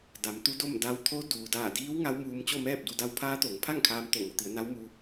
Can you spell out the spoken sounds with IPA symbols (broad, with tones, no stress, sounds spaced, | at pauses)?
d a˩˧ m t̪ u˧˥ d o˥˨ m d a˧ w t̪ʰ o˧˥ d uː˩ d aː˧˩ d iː˧˥ w ŋ a˧˥ w m uː˧ m t͡ɕ o˥˨ m ɛː˥˨ p̚ d u˧ d a˧˥ w pʰ aː˧˥ t̪ o˩˧ ŋ pʰ a˥˨ ŋ kʰ aː˧ m t̪ o˧˩ ŋ o˩˧ t̪ i˩˧ ə̯ n a˧˥ w m u˧